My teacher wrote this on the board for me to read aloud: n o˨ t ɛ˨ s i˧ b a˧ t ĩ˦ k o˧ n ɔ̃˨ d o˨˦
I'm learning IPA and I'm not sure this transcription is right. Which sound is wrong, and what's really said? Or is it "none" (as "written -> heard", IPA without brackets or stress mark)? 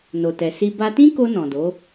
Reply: none